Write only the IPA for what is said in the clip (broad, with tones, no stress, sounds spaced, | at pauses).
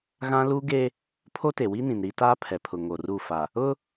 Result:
ɣ ã˦ l u˦ ɡ e˦ | pʰ o˦ t e˨ w i˦ n ĩ˨ n ɾ i˦ t aː˦ pʰ ɛ˨ pʰ ʊ˨ ŋ o˨ r u˦˨ f a˨ | ʊ˦